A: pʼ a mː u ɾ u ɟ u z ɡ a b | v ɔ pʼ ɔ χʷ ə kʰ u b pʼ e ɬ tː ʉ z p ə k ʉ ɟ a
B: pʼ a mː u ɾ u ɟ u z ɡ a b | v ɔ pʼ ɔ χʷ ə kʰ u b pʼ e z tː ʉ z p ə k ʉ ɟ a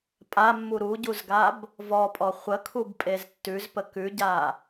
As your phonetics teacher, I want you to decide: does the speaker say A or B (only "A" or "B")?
B